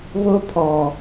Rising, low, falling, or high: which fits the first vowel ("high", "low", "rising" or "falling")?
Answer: high